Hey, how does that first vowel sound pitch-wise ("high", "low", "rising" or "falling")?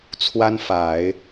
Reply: high